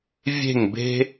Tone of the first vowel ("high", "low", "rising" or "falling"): falling